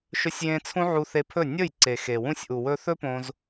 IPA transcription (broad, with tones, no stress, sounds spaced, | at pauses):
ʃ ɵ˧ sʲ j ẽ˧ t͡sʰ ũ˦ ʕ u˧ θ e˧ pʰ ɵ˦˨ nʲ ɵ˦˨ j ǀ e˨ x e˨ w ũ˧ sʲ ʔ u˨ w ɵ˧ θ ɵ˦ p õ˧ z